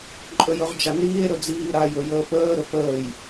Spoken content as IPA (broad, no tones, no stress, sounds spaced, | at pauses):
ǃʼ ɵ j ɵ ʁ d͡ʒ a n iː e̯ ɾ ɵ d͡z iː ɾ a j ɵ j əː p əː ɾ ɵ p əː j